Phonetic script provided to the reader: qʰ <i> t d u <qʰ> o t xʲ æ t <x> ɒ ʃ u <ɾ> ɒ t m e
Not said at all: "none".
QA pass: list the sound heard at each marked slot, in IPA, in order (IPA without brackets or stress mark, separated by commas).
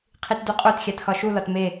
i, qʼ, x, l